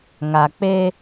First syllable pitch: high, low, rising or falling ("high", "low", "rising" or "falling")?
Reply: low